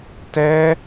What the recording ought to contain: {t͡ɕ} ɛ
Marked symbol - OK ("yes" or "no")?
no